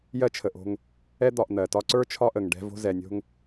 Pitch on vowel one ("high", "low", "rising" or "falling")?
high